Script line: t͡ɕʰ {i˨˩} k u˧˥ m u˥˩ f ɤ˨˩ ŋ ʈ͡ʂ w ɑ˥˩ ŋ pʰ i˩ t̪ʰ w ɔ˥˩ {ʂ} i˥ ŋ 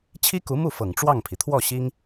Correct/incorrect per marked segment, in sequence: incorrect, incorrect

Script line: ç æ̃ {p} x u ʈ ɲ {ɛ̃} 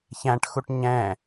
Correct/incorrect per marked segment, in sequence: incorrect, correct

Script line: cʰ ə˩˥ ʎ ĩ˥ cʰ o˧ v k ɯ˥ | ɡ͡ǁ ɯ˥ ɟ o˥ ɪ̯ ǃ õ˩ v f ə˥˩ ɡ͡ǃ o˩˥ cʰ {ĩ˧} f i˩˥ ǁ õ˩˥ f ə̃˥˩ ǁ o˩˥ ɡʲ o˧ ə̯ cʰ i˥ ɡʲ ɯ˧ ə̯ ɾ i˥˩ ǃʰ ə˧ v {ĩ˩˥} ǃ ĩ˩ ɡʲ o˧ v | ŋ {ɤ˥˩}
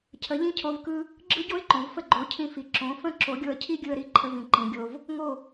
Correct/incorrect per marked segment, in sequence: correct, incorrect, incorrect

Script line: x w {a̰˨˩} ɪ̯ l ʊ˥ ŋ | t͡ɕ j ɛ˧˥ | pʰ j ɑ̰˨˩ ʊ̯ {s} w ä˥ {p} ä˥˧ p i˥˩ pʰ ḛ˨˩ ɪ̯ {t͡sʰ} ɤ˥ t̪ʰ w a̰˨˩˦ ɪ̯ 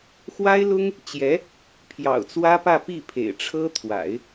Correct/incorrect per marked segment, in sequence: incorrect, incorrect, correct, incorrect

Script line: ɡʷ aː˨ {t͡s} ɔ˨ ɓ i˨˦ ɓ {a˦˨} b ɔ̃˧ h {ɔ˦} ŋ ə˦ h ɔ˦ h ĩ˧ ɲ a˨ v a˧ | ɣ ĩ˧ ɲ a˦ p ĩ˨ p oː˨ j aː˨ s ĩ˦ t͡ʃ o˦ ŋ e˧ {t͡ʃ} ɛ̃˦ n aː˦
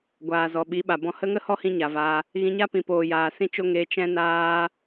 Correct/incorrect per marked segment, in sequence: incorrect, incorrect, incorrect, correct

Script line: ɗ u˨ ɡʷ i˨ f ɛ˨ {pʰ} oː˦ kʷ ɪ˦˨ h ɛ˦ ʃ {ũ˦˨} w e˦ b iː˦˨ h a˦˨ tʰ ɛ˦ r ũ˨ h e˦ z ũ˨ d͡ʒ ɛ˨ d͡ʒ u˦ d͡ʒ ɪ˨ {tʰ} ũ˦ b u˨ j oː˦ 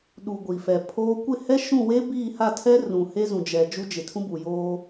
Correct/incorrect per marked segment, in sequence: correct, correct, correct

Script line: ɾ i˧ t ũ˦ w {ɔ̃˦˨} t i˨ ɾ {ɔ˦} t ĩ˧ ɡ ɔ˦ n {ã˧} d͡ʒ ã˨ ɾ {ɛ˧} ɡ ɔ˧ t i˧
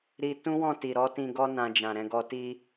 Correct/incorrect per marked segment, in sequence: correct, incorrect, correct, incorrect

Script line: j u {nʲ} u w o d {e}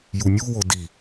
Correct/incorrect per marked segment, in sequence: correct, incorrect

